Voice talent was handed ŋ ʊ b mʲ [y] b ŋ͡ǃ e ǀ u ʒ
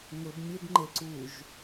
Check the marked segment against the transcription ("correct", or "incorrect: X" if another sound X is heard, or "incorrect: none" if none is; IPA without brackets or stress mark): incorrect: e